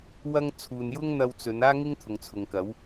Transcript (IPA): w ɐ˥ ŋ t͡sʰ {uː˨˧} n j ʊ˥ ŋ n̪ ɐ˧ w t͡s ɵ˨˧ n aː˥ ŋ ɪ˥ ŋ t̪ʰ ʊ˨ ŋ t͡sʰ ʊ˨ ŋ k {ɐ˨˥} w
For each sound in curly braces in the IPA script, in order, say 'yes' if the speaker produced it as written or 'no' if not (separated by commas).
no, yes